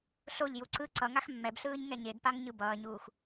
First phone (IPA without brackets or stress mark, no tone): ɬ